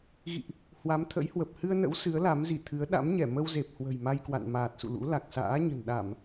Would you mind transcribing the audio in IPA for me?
ɣ ḭ˧˨ ʔ | h w a˨˦ m t̪ʰ ə̰˧˥ j h w ə˨˩ p̚ h ɨ˧ ə̯ n ə̰˧˥ w s ɨ˨˦ ə̯ l a˨˦ m z i˧˩ t̪ʰ ɨ˨˦ ə̯ ɗ a̰˧˥ m ɲ ɛ˧˩ m ə˧ w z e˨˩ p̚ h w ə̤˨˩ j m a˧ j k w a̰˧˨ n m aː˨˩ t̚ s ṵ˧˨ l ṵ˧˥ l a˨˩ k̚ s a̰ː˧˥ ɲ ə̤˨˩ n ɗ a˧˩˨ m

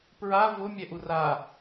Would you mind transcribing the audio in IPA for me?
p ɹ a v ʊ mʲ ɛ ʔ u r a

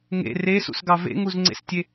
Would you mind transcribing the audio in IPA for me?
ŋ ḛ r e s ṵ s ɡ ɑ v ḛ ŋ u z ŋ͡ǀ ḛ s tʲ e

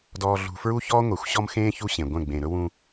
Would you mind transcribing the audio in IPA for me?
d ɔː˨ ɮ ṳ˨ f ɹ u˦ ç ɔː˦ ŋʷ e˨ xʷ ɕ ɔ˦ m x ẽː˦ ç u˦ ɕ ẽ˨ ɡʷ ɛ̃˦˨ ɡ͡b ẽ˨ ɾ ɵ˦ w ũ˦

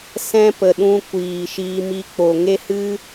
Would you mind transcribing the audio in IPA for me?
s ɛ̃˦ p ə˨ ɗ ũ˧ kʷ iː˨ ʃ iː˧ m i˧ k͡p o˨ ŋ e˦ h ɨ˦

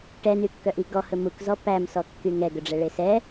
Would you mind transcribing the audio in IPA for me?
ʈ ɛ n y kː œ ʔ i ɡ ɔ h ɵ m u k z ɔ p æ m s ɔ kː y ŋ ɛ ɡ ɵ ɖ͡ʐ ɛ ɭ e s ɛ

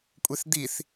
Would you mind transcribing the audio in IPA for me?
kʷʼ e θ d̪ i θ

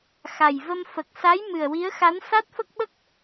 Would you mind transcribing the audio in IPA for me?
x a˨˩ j v ə˧ m f ə˨˩ k̚ s a˧˥ j m ɨ˨˩ ə̯ w i˧˥ ə̯ x a˧˥ n s a˦˥ t̚ f ə˦˥ k̚ ɓ ə˦˥ k̚

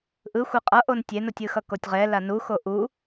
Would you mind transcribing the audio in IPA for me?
ʔ ɯ xʷ ɛ qʼ ʌ ʔ o n tʲ e n o tʲ ɯ x ʌ k o tʲ ʁ ɛ l a n u x o ʔ u

